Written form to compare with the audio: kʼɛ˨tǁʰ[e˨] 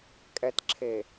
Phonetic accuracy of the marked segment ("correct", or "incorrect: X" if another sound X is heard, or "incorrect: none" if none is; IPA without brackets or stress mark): correct